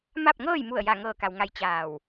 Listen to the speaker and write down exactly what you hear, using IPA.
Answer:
ma˥˨p̚ŋɤː˥˨jmu˧˩ə̯ ja˧˩ ŋɤː˧˩ka˩wŋa˧˩j t͡ɕaː˧˩w

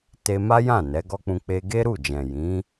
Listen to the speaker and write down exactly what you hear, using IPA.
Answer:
te˧ma˦jã˦˨ nɛ˨˦ɡɔ˦k͡pũ˧ k͡pe˧ɡe˦ɾu˦˨ d͡ʒɛ̃˨ jĩ˨˦

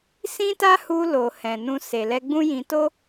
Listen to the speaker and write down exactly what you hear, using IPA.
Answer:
sĩ˦ta˦ hu˧lo˨ hɛ̃˨nũ˧ se˨lɛ˧ɡ͡bũ˦jĩ˧ to˦

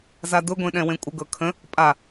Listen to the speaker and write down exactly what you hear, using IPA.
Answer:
zadʊɡʷẽ ɗɛ̃wẽkʷʼəɡɤ kʰə̃ | pʼa

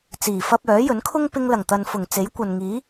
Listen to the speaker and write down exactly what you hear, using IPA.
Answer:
t͡siː˨˩fɐ˧p̚ œː˨˥jɵ˨˥nkʰʊ˥ŋ pɪ˧ŋlɐ˨˩ŋt̪ɐ˨nfʊ˨˩ŋ t͡se˨˥j kʷɐ˨nŋiː˨˥

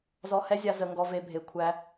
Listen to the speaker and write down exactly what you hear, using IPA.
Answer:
zɔ˧hɛ˦zʲa˧ zə˧ ŋɡɔ˧ve˧ bʱe˨kʷʰæ˧

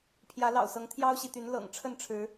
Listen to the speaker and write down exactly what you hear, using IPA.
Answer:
pʰjä˨˦lɑ̰˨˩ʊ̯sɤ˨˦ŋ t̪ʰjɑ˦ʊ̯ɕi˨t̪y˨˦n lɤ̰˨˩ŋ ʈ͡ʂʰə˥˨nʈ͡ʂʰɻ̩˨˦

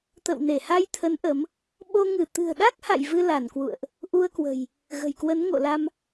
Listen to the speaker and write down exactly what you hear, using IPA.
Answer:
t̪ə̰˧˨wne˧˩ha˧jt̪ʰə˨˦n ʔə˨˦m | ɓo˧ ŋɨ˧˩t̪ɨ̤˨˩ə̯ ɗa˦˥k̚ha̰˧˨j vɨ˧la˧˩nkwṵ˧˨ə̯ʔ | ʔu˧ə̯kwə̤˨˩j | ɣə̤˨˩jkwə˨˦nŋo̰˧˨ la˧m

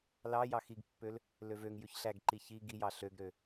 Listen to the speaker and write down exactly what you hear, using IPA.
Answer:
lɑ jɑxiɡpːøl | løvøŋjʉç ɬæɡǃi çi ɡijɑ ɬøɡɾø

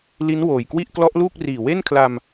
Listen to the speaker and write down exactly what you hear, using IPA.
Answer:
li˦˥nwoː˨˩jkwi˥˩ʔ klɔ˦˥ʔluː˥˩k̚riː˨˩ we˥˩nkʰla˧m

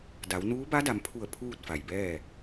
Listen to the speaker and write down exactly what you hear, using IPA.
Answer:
da˩˧w nuː˧˥ba˧˥da˩˧mpʰu˧˩ə̯ pʰuː˥˨t̚fa˩jbɛː˥˨

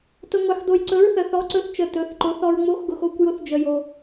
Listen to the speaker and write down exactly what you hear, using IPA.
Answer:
tə˧ŋʷa˧xdo˧j ǀɵ˧˥ɹ θə˧θɔ˧˥ǀɵ˧˥θt͡ʃə˧ tɵ˧˥θǃʊ˧˥ θɔ˧ɹŋ͡mo˧˥xɡʊ˧x o˧˥kʷjʊ˧˥θd͡ʒə˧jo˧

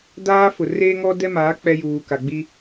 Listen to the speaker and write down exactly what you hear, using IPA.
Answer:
daː˦fʊ˨ reː˦ŋɔ˦dɛ˦maː˨˦ k͡pɛ˦juː˨ka˨ɡ͡bi˦

